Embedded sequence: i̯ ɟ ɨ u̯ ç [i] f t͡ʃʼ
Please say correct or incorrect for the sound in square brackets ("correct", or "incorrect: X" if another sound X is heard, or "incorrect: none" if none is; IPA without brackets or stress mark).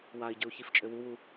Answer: correct